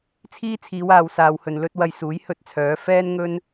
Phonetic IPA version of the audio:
t͡sʰ iː˥ t͡sʰ iː˨˧ w aː˨ w s aː˨ w h ɵ˨ n l ɵ˥ t̚ w ɐ˧ j s uː˨˥ j h ɵ˥ t̚ t͡sʰ œː˨˥ f ɛː˥ n ŋ ɵ˥ n

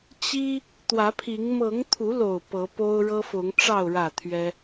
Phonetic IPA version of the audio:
t͡ɕ i˦ | t̪ w ä˨˦ pʰ i˨˦ ŋ m ɤ˨˦ ŋ t̪ʰ u˨˦ l o˨˩ ʊ̯ p ɤ˨˦ p o˦ ʊ̯ ɻ ɤ˦ f ʊ˨˦ ŋ ʈ͡ʂ ɑ˥˨ ʊ̯ ɻ ä˥˨ t̪ʰ ɥ ɛ˦

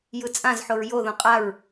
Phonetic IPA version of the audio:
j ɯ t͡sʼ ã z ħ o ɹ j o ð õ qʼ a ɹ

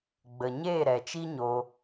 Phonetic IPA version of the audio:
ɡ͡b ə˨ ɲ eː˦˨ ɾ ɛ˨ t͡ʃ i˦ ɲ o˧

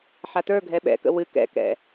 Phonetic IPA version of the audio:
ħ a t ə˞ ɡʱ ɛ ɓ ɛ̰ k ə̰ w ɨ k ɛ̰ k ɛ̰

